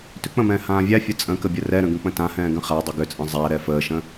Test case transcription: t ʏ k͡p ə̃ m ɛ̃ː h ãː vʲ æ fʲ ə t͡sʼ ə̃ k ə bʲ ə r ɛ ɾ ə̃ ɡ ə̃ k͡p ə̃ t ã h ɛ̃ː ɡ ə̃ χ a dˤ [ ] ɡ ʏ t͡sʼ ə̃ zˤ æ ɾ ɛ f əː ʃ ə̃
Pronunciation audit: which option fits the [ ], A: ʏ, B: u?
A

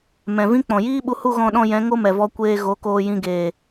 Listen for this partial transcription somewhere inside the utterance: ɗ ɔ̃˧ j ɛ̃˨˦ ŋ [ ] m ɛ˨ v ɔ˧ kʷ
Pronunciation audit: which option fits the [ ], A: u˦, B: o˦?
B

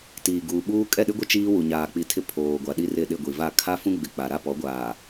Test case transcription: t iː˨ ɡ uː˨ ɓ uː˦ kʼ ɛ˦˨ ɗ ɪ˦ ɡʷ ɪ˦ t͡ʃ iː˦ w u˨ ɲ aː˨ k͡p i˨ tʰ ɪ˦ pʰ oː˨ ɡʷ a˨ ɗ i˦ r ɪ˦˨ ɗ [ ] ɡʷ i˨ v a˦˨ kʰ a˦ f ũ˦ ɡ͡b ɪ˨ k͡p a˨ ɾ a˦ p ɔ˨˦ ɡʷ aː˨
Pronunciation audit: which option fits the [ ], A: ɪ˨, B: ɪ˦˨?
B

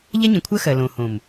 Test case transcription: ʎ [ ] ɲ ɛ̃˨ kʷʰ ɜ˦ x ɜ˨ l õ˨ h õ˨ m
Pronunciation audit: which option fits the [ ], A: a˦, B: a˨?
A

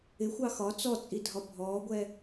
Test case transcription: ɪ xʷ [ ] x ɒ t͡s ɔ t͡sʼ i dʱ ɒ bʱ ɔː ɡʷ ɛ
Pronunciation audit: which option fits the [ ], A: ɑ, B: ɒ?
A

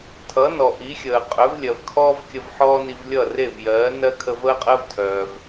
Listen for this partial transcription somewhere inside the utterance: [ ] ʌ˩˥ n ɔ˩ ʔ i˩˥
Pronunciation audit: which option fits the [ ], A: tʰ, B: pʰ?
A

